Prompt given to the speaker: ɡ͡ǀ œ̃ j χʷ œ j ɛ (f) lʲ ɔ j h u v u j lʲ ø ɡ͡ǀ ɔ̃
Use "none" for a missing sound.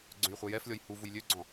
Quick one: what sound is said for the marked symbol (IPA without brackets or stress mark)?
f